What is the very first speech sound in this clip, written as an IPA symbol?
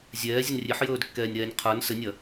zʲ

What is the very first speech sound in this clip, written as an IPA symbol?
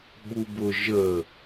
ɓ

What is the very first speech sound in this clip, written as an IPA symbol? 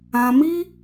ã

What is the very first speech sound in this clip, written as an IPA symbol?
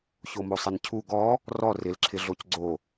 ç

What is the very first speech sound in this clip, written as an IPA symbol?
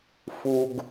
f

